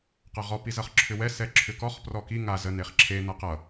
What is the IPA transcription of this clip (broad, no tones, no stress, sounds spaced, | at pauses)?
q ʌ ʁ ɔ p i z ʌ χ ǁʰ ʏ w ɛ s ɛ ǁʰ ʏ k ɔ χ p r ɔ k i ŋ a z ə n e χ ǁʰ e n ʌ q ʌ